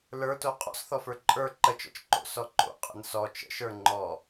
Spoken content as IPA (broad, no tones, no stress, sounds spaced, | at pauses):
l ə˞ t o qʼ ɔ̰ s θ ɔ f ə˞ ǃʼ ə˞ ǃ ə t͡ʃ ɔ̰ t͡ʃ ǃ o̰ s ɔ ǃ o̰ qʼ ə̰ n s ɔ t͡ʃ ə̰ ʃ ə˞ ŋ͡ǃ ɔ